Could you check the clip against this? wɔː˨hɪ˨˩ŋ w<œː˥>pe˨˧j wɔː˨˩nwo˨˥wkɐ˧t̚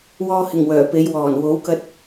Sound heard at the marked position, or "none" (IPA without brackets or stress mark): œː˨˩